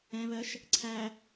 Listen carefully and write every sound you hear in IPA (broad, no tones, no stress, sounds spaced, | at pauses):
ɛ̃ β ɜ ʃ | ǀʰ æ